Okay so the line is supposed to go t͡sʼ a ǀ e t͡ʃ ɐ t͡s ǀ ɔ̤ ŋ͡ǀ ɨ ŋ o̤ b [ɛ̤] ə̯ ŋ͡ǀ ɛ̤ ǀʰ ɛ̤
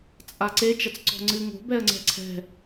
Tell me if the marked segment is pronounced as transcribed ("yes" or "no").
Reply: no